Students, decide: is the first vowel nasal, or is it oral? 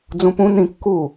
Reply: nasal